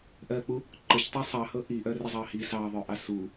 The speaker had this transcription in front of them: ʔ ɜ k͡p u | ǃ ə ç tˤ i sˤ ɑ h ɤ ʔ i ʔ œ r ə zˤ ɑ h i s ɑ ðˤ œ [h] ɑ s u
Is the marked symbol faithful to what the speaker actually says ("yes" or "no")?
no